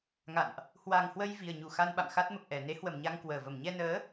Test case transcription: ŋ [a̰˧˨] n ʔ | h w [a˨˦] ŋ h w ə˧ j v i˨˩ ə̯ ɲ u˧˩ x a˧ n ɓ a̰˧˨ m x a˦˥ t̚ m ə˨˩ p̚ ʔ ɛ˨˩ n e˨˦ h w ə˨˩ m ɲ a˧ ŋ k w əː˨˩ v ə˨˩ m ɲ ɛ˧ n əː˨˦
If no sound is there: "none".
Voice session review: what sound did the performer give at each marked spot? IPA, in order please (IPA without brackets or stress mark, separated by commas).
a̰˧˨, a˨˩